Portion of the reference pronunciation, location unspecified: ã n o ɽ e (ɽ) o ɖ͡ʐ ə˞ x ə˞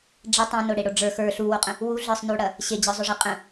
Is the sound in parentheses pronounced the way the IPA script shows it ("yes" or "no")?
yes